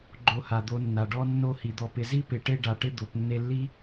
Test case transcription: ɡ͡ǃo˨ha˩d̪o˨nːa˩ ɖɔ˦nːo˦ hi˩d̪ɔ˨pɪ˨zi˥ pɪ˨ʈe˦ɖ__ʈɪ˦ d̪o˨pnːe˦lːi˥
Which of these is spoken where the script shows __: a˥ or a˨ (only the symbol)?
a˨